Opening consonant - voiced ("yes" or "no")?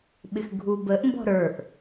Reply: yes